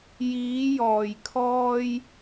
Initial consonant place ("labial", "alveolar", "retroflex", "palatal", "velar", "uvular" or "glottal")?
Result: palatal